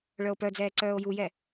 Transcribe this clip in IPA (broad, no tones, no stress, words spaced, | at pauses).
ɭœo̯pœd͡zɛː ǀœːo̯jujɛ